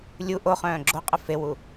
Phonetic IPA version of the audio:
lʲu ʔoχœ̃ː ɡ͡ǁo qʼəfewu

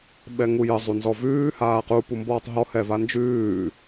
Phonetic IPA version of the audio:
ɓɛŋujə zˤunzɔvʉː haːqu pumbɔːtˤɦɔ hɛvand͡ʒʉː

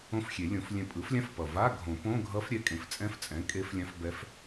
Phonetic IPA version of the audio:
õ˧˥fxʲe˨˩˦lʲõ˨˩˦flʲɛ̃˧ pʼɯ˩˥flʲã˧˥fpʌ˨˩ va˧˥˧ɡʱõ˨˩˦põ˧˥˧ɡʱʌ˧˥f ɾʲɛ˩˥ kʼẽ˩˥ft͡sʼɛ̃˧˥f t͡sʼɛ̃˩˥ kʼe˧˥f lʲã˧˥fbɛ˧˥f

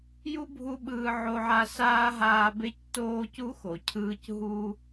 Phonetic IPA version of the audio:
ju˥bʱu˦ ɓɯː˦ʕo˦ʕa˦ saː˥ɦaː˦ be˦ctoː˦cu˦ xo˩cʰɯː˥c ɦu˦

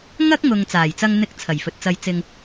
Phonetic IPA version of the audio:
ŋɐ˥k̚ŋʊ˨ŋ t͡saː˨˩jt͡sɐ˧ŋ n̪ɪ˨˥k̚ t͡sʰɐ˨˩jfɵ˨t̚t͡sɐ˧jt͡sɪ˧ŋ

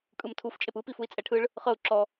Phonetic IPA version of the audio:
kʼɯmtʰuf t͡ʃʼepɯpif ui̯t͡sʼɛʈʰɯɭ | χɤu̯ ǁɔ

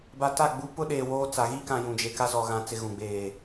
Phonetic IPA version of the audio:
ba˨ta˦˨ ɡ͡bu˦ pʊ˦ ɗeː˨ woː˦t͡sa˨ ɣi˦kã˨ jũ˨d͡ʒe˨ ka˦zɔ˨ɣã˨ t͡sɪ˦ ɣũ˨ɡ͡beː˨

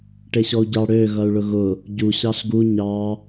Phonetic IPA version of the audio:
ʈeɕɔu̯ɟɑ ɽø ɣʌu̯ɭʊɣʊ | ɟu ɕɑɬɡu ɲɑ

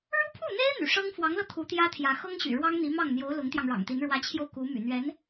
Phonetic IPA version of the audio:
ɻu˥pʰu˥˩n̪e˥ɪ̯ n̪y̰˨˩ʂɤ˥ŋ fwɑ˧˥ŋlɤ˧ t̪ʰu˧˥t̪jä˥ t̪ʰjä˧˥ xɤ˥ŋɕy̰˨˩ ɻwɑ˥ŋn̪i˧˥mɑ˥˩ŋn̪jo˧˥ʊ̯ lʊ˧˥ŋt̪jɑ˧ŋɻɑ̰˨˩ŋt̪i˧˥n ɻwä˧˥t͡ɕʰjo˧ʊ̯ ku˧˥ my̰˨˩n̪ɥɛ˧˥n

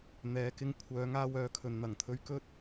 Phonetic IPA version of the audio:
n̪ɛː˨˧kɪ˧ŋ kʷʰœː˨˧ŋaː˧wœː˨kʰɵ˨n n̪ɐ˨˩ŋt̪ʰɵ˧ɥ kɵ˥t̚

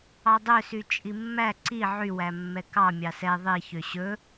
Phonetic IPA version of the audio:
ɑdˤøsy t͡ʃʼimːæ ǀi ʕywæ mːɛkɑ mʲɑsɛ ðˤiçø ɕɵ

